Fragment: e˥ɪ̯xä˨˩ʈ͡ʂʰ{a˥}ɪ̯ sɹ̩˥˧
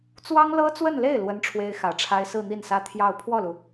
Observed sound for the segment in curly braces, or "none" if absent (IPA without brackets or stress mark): a˥